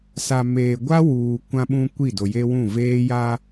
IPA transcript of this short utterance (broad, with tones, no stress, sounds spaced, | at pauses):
s a˨ m eː˨ ɡʷ a˦ w uː˨ kʷ ã˦ ɓ ũ˦ kʷ i˦˨ d o˨ j e˦ w ũ˦˨ v eː˦ j a˦